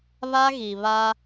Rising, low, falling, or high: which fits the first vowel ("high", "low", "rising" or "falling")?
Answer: high